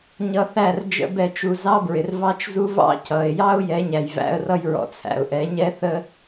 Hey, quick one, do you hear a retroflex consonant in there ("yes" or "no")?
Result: no